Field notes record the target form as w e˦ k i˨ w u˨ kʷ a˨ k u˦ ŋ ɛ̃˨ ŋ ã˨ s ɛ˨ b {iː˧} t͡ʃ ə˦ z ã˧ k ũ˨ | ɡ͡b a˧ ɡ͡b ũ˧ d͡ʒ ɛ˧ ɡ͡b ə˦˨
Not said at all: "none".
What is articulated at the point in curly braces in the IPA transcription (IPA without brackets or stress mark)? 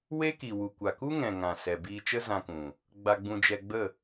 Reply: iː˧